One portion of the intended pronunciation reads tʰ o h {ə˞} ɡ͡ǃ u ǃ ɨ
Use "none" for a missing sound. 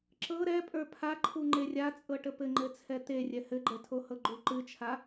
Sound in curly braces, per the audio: ɤ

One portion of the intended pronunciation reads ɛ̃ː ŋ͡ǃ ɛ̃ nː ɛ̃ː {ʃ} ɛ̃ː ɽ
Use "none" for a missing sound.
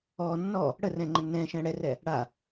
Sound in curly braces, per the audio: ʃ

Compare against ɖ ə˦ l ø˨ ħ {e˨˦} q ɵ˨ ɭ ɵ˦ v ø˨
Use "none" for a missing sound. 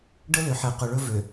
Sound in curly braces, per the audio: e˨˦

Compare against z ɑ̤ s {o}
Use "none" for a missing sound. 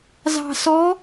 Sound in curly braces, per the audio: ɔ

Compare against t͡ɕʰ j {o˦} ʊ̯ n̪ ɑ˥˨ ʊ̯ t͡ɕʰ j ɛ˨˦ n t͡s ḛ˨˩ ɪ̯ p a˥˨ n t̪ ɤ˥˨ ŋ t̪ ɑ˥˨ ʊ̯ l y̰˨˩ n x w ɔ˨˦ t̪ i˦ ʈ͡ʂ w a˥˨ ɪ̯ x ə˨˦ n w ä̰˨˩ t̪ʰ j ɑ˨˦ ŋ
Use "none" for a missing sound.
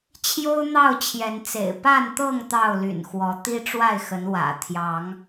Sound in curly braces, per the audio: o˦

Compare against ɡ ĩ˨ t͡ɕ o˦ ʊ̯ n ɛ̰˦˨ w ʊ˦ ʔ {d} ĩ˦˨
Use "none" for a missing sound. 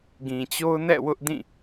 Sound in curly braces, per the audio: d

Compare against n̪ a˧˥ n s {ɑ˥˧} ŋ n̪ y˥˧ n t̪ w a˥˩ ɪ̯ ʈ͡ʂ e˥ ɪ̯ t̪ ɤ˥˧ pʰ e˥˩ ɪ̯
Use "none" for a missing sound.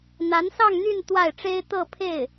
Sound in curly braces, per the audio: ɑ˥˧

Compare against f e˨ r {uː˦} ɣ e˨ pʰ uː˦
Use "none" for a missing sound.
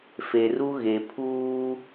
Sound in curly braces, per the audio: u˦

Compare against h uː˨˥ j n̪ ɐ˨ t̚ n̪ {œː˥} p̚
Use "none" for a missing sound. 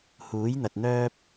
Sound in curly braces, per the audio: œː˥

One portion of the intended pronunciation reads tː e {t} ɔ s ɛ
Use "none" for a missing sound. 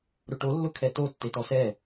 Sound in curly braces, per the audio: t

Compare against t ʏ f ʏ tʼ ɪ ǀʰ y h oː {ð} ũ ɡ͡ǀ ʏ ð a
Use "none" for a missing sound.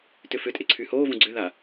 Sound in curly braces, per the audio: v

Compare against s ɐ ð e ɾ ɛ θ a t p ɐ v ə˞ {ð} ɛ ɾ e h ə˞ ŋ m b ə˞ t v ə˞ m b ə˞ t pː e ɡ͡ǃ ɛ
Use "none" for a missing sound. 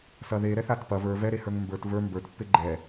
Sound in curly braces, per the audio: v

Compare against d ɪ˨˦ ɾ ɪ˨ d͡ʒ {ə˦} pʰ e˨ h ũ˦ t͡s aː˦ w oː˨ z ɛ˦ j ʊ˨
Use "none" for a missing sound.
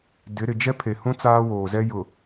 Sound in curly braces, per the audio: ɛ˦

